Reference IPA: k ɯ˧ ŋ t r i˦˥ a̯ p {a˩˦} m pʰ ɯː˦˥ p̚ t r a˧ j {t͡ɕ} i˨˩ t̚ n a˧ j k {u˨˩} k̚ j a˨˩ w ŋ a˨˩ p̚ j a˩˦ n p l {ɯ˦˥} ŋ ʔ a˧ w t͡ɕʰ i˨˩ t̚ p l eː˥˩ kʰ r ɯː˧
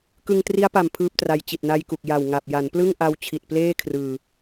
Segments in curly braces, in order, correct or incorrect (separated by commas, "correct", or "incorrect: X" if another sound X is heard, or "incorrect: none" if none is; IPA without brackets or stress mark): incorrect: a˨˩, correct, correct, incorrect: ɯ˥˩